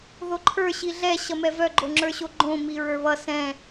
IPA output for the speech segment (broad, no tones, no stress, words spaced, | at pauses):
ðoǃʰə˞ ɕiɮɛ ɕʌmɛvœ ɡ͡ǃoŋ͡ǁə˞ɕoɡ͡ǃõ miɹə˞βʌ sɛ̃